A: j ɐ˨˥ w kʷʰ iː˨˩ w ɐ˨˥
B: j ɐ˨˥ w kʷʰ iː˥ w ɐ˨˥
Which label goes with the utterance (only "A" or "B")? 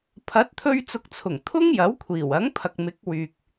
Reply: A